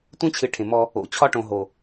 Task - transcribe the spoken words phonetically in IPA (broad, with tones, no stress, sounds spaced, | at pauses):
tʷ ẽ˦ t͡ɕʰ ɨ˨ ʈʰ ẽ˨ m ɔ˦ | o̰˨ t͡ɕʰ ɒ˦ ʈ õ˨ ɦ o˨